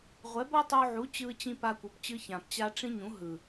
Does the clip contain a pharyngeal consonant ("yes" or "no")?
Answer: yes